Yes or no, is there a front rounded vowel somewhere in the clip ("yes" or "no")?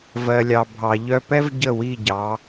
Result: yes